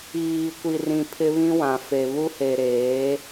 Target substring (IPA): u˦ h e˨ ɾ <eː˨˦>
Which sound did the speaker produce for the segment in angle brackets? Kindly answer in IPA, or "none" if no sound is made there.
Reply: eː˨˦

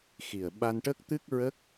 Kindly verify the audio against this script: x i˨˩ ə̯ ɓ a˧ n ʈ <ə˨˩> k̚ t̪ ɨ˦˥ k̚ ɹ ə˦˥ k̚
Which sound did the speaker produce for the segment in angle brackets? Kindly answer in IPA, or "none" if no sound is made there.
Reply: ə˦˥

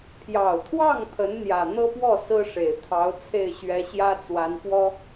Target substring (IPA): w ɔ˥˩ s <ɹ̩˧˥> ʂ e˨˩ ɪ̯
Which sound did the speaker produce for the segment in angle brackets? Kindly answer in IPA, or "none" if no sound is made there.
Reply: ɹ̩˥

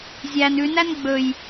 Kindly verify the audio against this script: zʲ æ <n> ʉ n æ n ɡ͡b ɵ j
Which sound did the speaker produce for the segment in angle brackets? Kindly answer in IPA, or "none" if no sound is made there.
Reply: n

